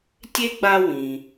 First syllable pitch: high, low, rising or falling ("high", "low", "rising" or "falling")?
high